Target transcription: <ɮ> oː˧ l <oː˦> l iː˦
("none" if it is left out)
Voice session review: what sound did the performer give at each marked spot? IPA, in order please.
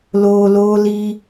l, oː˦

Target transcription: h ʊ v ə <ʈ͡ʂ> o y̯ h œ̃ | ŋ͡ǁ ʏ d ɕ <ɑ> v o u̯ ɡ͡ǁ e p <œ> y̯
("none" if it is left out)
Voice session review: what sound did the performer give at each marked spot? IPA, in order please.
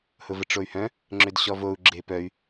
ʈ͡ʂ, ɔ, œ

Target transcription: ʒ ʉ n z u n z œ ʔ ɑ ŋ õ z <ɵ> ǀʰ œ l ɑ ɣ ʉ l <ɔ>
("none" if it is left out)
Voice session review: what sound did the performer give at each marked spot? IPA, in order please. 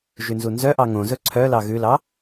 ɵ, ɑ

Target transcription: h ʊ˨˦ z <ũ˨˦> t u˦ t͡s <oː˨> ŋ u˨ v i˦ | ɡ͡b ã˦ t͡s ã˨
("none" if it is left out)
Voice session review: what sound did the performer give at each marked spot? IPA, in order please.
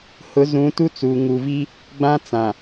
ũ˨˦, uː˨

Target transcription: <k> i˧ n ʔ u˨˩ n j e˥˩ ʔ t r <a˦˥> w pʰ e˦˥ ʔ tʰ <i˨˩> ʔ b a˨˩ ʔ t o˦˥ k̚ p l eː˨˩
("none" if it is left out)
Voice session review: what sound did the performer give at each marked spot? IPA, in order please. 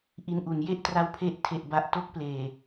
ʔ, a˦˥, e˨˩

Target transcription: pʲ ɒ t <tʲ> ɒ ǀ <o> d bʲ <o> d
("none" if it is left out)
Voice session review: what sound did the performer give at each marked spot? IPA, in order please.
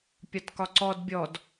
k, ɔ, ɔ

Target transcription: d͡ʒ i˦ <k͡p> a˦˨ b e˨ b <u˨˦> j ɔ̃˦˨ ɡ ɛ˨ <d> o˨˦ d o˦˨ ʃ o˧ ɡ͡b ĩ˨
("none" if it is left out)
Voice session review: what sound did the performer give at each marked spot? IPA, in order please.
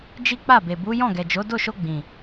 k͡p, u˨˦, d͡ʒ

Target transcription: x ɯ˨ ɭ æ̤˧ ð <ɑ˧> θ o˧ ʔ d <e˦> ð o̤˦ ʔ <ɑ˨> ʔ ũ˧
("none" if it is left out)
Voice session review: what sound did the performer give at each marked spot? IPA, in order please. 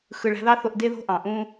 ɑ˦, e˦, ɑ̃˨

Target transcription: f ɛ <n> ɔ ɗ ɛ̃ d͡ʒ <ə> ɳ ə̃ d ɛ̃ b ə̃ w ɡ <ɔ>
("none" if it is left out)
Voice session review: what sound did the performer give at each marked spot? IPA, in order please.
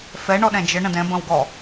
ɳ, ə, ɔ

